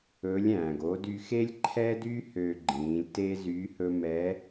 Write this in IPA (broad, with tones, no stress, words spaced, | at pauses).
ɵ˧˥lʲæ̃ː˩ɡo˧˥ dy˧xe˥lʲǃʰɛ˥dy˥ hø˧ɡ͡ǃĩː˩˧lʲ te˥zy˧˥ hɵ˥ mɛ˧˥